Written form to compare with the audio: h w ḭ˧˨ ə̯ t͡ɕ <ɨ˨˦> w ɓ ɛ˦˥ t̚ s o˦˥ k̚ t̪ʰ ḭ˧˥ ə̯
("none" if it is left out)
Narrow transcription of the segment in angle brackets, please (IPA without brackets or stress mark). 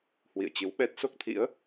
ɨ˨˦